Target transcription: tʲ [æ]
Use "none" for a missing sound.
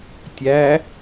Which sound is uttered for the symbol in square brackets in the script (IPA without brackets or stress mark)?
æ